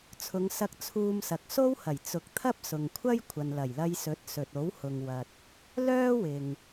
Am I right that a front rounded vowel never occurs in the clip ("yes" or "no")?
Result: no